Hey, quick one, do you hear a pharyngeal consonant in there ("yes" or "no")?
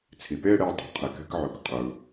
yes